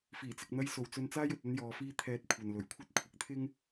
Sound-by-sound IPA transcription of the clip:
f iː˨˩ t͡s ɪ˨ k̚ n̪ ɐ˧ j s o˨ w t͡s ɵ˧ n t͡s aː˥ j ɵ˨ t̚ ɐ˥ n j ɔː˨˧ f iː˥ t̪ʰ ɛː˧ t̚ kʷʰ ɐ˨ n l ɵ˨˩ ɥ kʷʰ ɐ˥ t̚ kʷʰ ɪ˨˥ k̚ t̪ʰ ɪ˥ ŋ

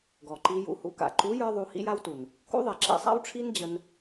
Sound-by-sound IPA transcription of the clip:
ɡ ɔ˨ ǃ i˧ j ṵ˧ h ṵ˧ k a̰˨ ǃ u˨˦ j ə˞˦ ðˤ u˧ h ḭ˦ j a˦ w t u˨ n | k ṵ˦ ðˤ e˨ ǁ ḭ˧ sˤ a̰˦ w ʈ͡ʂʰ i˦ n d͡ʑ ə˧ n

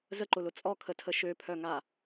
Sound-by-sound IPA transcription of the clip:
z ə ǃ ʊ l ʊ t͡sʼ ɔ kʰ ə tʰ ə ʃ ø pʰ œ ŋ a

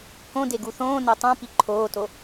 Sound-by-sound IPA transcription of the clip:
k õ d e ɡ u θ õː n e tˤ õ p i ǃʰ oː t o

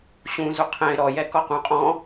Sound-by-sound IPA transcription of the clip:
ɕ ũ z u qʰ ɛ̃ ɪ̯ ɾ ɔ j ɛ k ɔ q ũ qʼ ɔ̃

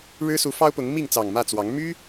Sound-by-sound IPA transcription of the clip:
ɻ ɻ̩˦ s u˨˦ f ɑ˦ ʊ̯ p ʊ˨˦ ŋ m i˥˨ ŋ t͡s ɑ˨˩ ŋ m ä˥˨ t͡s w ɑ˨˦ ŋ m y˦

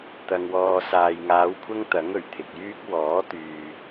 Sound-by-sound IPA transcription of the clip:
t̪ ɐ˧ ŋ w ɔː˧ s aː˨ j ŋ aː˨˧ w kʷʰ ɐ˥ ŋ t̪ ɐ˨˥ ŋ ɵ˨˩ ɥ t̪ʰ ɪ˨ k̚ j yː˥ k̚ w ɔː˨˥ t̪ yː˨

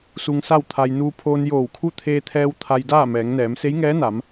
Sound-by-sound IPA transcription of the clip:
s u˧ ŋ s a˥˨ w t̪ʰ a˧ j n uː˧ pʰ oː˧ n j oː˧˩ w kʰ u˥˨ t̪ʰ eː˧ t̪ʰ ɛː˧ w t̪ʰ a˧ j d aː˥˨ m ɛː˩˧ ŋ n ɛː˩˧ m s e˧˥ j ŋ ɛː˧˥ n a˩˧ m

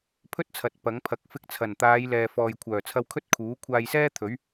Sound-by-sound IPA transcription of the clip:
pʰ ɵ˥ t̚ t͡sʰ ɐ˨˥ t̚ p ɐ˨˥ ŋ pʰ ɐ˨˥ k̚ f ɪ˧ k̚ t͡sʰ ɐ˨˩ n t̪ aː˨˧ j l ɛː˨ f ɔː˨ j kʷʰ œː˨˩ t͡sʰ ɐ˧ w kʰ ɵ˥ t̚ kʰ uː˨˥ kʷʰ aː˧ j s ɛː˥ t̪ʰ ɵ˨˥ ɥ

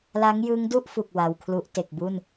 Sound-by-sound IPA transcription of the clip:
l a˦˥ ŋ j ɯ˦˥ ŋ d u˥˩ ʔ f u˨˩ k̚ w a˧ w kʰ l u˦˥ ʔ t e˨˩ k̚ b u˥˩ n

